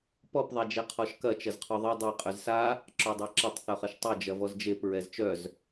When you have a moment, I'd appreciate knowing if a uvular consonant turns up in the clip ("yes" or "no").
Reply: yes